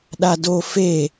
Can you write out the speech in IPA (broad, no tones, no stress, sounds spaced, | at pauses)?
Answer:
ɗ a d o f e